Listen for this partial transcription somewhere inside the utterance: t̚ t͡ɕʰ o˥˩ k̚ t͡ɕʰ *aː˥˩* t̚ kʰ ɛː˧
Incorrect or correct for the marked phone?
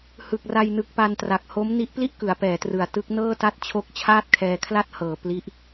correct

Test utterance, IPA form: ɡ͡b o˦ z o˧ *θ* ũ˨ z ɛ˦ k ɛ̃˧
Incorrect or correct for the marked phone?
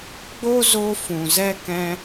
incorrect: f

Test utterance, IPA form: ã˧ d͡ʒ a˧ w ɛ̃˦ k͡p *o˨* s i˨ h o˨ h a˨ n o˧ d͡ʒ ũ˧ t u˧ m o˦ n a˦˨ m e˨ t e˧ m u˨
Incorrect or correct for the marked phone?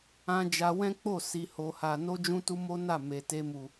incorrect: o˦˨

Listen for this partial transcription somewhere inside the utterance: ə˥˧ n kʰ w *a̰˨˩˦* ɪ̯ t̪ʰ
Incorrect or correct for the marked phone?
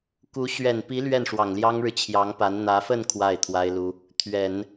incorrect: a˥˩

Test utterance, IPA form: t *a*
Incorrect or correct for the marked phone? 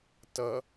incorrect: ʌ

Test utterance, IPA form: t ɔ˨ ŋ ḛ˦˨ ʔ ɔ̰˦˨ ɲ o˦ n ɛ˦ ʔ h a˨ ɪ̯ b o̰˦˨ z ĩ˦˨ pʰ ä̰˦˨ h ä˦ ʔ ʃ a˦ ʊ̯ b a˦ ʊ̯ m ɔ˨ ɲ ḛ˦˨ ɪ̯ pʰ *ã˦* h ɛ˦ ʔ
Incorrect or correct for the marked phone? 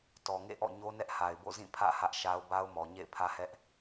incorrect: ä˦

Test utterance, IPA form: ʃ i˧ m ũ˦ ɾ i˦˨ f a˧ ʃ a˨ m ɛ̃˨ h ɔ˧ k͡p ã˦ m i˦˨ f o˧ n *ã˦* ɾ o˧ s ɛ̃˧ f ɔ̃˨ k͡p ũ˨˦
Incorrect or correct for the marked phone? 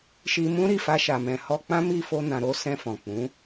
incorrect: ã˨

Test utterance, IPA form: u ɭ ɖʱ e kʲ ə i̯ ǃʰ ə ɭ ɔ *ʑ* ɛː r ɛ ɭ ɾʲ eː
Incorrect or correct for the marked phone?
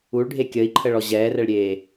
correct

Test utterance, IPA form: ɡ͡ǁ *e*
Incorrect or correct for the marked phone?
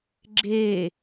correct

